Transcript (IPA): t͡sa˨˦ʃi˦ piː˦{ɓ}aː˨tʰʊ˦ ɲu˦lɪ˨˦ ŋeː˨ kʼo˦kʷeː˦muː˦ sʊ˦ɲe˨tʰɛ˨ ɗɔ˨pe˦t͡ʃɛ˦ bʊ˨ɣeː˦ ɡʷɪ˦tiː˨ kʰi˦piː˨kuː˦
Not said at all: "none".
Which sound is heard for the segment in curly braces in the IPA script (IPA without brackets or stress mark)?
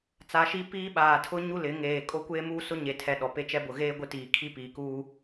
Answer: ɓ